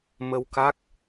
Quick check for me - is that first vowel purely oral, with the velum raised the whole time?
yes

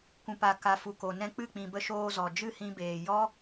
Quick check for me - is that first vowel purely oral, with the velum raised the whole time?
no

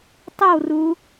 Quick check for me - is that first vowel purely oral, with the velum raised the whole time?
yes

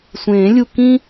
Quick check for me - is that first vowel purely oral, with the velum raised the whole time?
no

